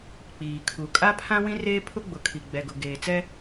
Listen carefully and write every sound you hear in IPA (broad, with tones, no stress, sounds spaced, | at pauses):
k͡p iː˨ kʰ u˨ kʼ a˦ pʰ ã˦ w ĩ˦ r eː˦ pʰ ʊ˦ ɡ͡b ʊ˨ kʰ i˨ ɡ͡b ɛ˨ ɡ ʊ˨ ɡ eː˨ t͡s ɛ˦